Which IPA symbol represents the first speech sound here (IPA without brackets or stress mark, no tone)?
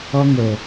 ɔ